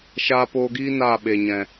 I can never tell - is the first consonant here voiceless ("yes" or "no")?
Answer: yes